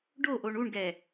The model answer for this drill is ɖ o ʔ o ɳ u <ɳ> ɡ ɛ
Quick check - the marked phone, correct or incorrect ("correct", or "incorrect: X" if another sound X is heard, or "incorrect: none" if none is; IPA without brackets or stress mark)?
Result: correct